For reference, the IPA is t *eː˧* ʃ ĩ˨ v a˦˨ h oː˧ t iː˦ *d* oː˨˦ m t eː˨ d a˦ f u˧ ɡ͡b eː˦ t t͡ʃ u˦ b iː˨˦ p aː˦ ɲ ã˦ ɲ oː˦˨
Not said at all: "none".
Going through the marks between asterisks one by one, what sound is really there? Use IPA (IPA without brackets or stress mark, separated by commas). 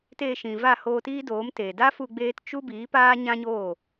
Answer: eː˧, d